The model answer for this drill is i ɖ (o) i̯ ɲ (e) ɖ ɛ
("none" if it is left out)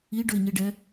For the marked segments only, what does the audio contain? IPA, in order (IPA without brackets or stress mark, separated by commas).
ɵ, i